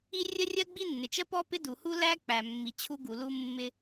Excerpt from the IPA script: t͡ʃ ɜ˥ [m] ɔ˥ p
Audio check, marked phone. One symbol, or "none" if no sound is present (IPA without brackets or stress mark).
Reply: p